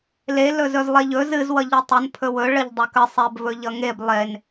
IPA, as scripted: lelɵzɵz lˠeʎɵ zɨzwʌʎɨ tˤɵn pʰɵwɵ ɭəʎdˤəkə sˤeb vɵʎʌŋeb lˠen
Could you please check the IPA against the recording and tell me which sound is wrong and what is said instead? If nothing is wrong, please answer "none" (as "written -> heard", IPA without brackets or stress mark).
none